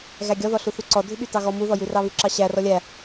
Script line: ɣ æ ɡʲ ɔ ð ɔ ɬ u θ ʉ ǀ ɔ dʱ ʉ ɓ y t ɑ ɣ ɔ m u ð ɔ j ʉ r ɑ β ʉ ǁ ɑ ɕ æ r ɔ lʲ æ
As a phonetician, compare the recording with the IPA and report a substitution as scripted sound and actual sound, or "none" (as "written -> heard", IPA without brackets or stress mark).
none